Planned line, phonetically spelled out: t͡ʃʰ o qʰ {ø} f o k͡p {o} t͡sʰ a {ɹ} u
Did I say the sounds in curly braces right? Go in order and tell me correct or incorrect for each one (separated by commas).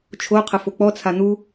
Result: incorrect, incorrect, incorrect